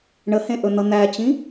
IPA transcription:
ɳ ə h ẽ ʔ ɵ n̪ ʌ n̪ æ t͡ɕ ĩ

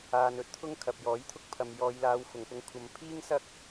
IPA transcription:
aː˧ n ɵ˥ t̚ t̪ʰ ʊ˥ ŋ kʰ ɐ˨ p̚ j ɔː˨˥ j t̪ʰ ʊ˥ k̚ pʰ ɐ˨ m j ɔː˨˧ j l aː˨˧ w f ʊ˨˩ ŋ p ʊ˧ ŋ kʷʰ ɐ˨˧ m pʰ iː˥ ŋ s ɐ˥ k̚

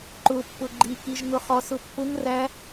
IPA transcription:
ǃ ʊ pː ʊ ɡ͡ǃ i k i ʒ ŋ ʊ χ ɔ s ʊ pː ʊ ŋ r æ

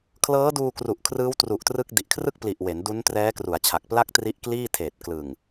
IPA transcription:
kʰ l ɤː˦˥ d uː˧ k r u˨˩ ʔ kʰ r ɯː˦˥ w t r u˨˩ ʔ t r ɯ˦˥ k̚ d i˨˩ ʔ kʰ r ɯ˥˩ k̚ p l i˨˩ ʔ w e˩˦ n d u˦˥ n t r ɛː˦˥ k r u˩˦ a̯ t͡ɕʰ a˨˩ k̚ p l a˥˩ k̚ t r i˦˥ ʔ k l iː˥˩ tʰ eː˨˩ t̚ k l ɯ˨˩ ŋ

